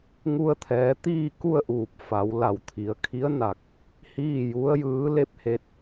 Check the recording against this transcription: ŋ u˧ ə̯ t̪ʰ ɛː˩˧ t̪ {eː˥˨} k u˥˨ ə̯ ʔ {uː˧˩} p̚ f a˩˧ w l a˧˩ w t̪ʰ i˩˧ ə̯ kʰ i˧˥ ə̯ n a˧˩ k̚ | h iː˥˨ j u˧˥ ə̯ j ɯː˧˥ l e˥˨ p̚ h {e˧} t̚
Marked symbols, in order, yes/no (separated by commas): no, yes, yes